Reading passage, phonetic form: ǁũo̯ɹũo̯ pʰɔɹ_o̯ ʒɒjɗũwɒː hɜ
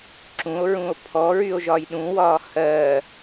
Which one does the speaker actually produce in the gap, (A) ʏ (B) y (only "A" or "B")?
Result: B